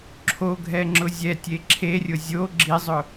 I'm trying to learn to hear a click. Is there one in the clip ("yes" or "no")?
yes